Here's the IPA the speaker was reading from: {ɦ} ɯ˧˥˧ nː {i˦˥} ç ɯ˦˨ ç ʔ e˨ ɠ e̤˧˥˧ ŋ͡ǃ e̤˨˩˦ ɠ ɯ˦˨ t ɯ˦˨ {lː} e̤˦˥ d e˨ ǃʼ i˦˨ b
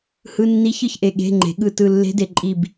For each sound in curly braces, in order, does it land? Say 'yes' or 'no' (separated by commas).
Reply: no, yes, yes